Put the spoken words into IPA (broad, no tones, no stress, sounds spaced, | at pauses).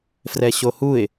f r ɛ ɕ o h u ɪ̯